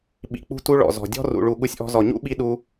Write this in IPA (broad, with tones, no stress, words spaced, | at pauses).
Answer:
ɓḭ˨k͡pṳ˧tu˧ ɭɔ̰˨zɔ̤˨dʲɔ̤˦ rṵ˨ɭu˨ ɠu˧sʲʔɔ̤˧ zɔ˨ɲṵ˦ɓi˧ ɗu˧